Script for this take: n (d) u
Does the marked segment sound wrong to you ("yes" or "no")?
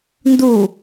no